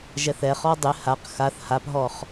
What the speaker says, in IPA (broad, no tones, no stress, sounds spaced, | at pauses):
ʒ ɛ θ ɛ χ ɔ dˤ ɪ h a q x a θ h a p ɦ ɔ χ